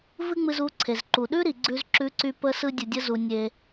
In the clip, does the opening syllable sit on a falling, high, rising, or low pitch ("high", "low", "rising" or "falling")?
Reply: high